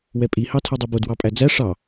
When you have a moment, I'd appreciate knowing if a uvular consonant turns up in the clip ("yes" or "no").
no